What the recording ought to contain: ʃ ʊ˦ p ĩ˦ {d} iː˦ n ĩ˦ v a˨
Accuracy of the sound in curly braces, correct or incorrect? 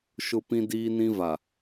correct